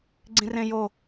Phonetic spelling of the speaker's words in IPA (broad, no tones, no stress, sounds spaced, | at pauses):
ɡ͡ǀ ĩ r ẽ j o